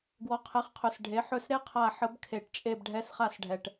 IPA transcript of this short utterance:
ɡ w ɔ˩˥ qʰ ɛ˩˥ χ qʰ ɵ˨˩ s ɖʱ e˩˥ ħ ɵ˦˨ s ɾ e˥ qʰ a˦˨ ħ ə˧˥ b kʰ e˧˩˧ ʈ t͡ʃʼ e˦˨ b ɖʱ ɛ˧˥ s χ a˦˨ s ɖʱ ɛ˨˩ ʈ

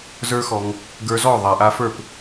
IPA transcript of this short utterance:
z ə˞˦ x ɔ˧ ŋ | ɡ ə˞˧ z ɔ˦˨ ðˤ ɛ˨ ʔ a˧ f ə˞˦˨ p

